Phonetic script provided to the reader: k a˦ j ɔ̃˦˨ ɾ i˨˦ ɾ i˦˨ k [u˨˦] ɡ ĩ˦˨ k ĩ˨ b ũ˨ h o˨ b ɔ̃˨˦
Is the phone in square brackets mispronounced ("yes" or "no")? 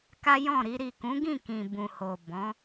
yes